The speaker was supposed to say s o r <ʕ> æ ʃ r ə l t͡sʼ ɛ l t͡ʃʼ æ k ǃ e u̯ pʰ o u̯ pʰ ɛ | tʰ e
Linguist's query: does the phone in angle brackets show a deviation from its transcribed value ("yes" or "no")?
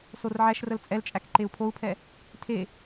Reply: no